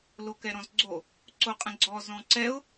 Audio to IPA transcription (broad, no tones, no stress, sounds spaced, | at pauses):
l o k ɛ ɾ ɔ̃ z ɡ͡ǀ o | ǀ o qʼ ə̃ ɡ͡ǀ ɔ z ɔ̃ ǀ ɛ ʊ̯